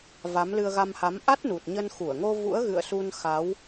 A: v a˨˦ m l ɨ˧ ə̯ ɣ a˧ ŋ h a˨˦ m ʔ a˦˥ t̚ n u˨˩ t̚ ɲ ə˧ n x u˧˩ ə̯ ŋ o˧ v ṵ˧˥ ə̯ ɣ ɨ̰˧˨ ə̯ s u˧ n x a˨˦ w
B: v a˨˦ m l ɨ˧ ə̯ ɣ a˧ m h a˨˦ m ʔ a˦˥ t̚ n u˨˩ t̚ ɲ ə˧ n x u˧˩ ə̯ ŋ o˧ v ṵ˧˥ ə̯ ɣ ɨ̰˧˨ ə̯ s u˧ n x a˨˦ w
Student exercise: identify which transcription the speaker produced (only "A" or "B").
B